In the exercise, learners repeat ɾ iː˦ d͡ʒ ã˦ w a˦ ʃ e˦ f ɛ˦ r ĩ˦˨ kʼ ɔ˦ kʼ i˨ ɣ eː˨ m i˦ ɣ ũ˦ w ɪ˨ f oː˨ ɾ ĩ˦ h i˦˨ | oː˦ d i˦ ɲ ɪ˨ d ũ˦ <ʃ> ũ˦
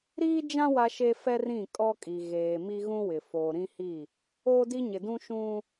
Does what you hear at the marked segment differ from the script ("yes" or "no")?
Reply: no